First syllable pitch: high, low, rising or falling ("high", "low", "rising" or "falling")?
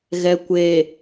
low